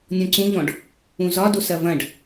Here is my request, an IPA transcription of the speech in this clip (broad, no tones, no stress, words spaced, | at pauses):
nʲɔ̃ǀũʎɔ̃ɖ | ũzɒdos ɐvɐ̃ɖ